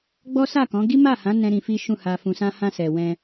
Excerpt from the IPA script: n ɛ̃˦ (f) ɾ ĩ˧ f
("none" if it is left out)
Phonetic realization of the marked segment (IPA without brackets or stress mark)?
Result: none